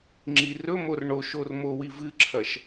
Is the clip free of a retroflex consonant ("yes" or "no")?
no